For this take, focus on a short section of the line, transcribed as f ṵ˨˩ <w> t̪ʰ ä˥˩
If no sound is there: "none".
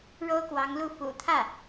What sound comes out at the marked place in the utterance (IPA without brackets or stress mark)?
none